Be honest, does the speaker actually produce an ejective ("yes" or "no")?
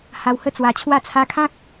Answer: no